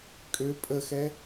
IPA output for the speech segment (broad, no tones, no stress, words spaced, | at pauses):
kʼø pʼəxɛ